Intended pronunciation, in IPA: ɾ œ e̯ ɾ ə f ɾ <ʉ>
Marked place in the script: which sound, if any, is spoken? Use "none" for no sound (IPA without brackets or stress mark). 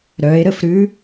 ʉ